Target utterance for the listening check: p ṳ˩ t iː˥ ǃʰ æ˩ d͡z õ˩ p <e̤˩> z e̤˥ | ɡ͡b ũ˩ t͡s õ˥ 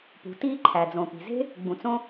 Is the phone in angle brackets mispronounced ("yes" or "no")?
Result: yes